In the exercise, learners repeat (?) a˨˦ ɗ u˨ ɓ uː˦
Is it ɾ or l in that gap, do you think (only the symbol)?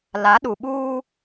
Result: l